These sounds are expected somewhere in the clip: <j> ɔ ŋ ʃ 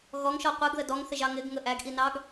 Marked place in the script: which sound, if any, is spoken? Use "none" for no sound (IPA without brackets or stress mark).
ɣ